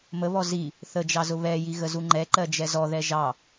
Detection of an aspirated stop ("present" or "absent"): absent